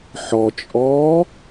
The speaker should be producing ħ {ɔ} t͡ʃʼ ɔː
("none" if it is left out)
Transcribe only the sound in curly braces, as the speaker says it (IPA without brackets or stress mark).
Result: ɔ